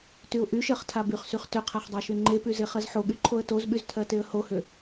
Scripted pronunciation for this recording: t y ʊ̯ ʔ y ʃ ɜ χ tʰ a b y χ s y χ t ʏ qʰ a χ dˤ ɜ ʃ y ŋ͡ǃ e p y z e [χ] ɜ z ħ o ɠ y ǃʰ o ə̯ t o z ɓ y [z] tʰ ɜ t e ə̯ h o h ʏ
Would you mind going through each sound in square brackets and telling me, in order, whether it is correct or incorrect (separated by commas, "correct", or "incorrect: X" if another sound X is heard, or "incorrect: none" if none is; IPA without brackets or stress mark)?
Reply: correct, correct